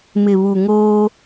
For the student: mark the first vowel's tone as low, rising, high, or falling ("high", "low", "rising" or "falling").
low